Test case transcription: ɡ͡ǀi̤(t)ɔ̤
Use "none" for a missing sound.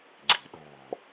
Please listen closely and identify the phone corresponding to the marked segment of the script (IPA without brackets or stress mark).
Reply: ɗ